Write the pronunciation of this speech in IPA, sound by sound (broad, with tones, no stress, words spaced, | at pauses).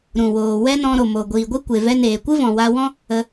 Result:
ɾũ˨woː˨ wɛ˦nɔ̃˧ɾo˨ mo˨ɡʷiː˨ ɡʷi˦kʷe˨ vɛ˧neː˨kʷɨ˦ vɔ̃˨wa˧wɔ̃˦ | ə˧